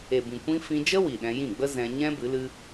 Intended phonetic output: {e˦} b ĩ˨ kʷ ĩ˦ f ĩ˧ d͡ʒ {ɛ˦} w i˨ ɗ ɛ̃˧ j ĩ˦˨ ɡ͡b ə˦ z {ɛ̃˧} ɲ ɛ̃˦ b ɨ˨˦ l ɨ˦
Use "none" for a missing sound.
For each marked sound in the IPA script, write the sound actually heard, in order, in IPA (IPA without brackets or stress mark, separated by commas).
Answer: e˨, ə˦, ɛ̃˧